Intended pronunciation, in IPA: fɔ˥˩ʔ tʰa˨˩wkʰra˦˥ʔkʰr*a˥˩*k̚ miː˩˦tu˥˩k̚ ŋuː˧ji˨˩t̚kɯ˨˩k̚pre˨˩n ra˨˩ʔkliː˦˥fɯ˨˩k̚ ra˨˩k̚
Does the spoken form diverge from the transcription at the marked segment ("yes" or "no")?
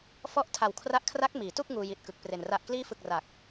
yes